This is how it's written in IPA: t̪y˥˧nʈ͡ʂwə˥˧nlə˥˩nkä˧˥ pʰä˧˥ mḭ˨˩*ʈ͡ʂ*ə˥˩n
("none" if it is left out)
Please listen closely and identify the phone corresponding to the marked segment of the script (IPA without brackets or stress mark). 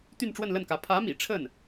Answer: ʈ͡ʂʰ